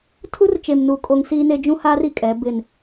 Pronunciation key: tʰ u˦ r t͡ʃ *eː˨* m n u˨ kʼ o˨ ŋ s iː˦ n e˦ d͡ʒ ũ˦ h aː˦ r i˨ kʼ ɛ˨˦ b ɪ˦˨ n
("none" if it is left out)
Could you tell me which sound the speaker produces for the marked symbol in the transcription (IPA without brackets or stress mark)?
e˨